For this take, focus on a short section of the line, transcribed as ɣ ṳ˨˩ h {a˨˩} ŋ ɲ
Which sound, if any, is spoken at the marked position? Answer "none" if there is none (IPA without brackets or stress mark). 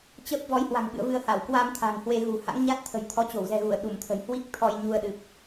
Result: a̰˧˥